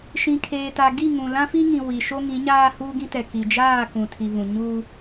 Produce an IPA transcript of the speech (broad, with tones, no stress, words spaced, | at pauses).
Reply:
ʃĩ˨kʰeː˨ta˨ ɡi˦˨ŋũ˨ lã˦fi˦ŋĩ˨ wi˨ʃo˦ ŋĩ˨˦ɲaː˦ huː˦ɡĩ˦tɛ˨ ki˨d͡ʒaː˦˨ kũ˨tʰi˨βũ˨ ɲuː˦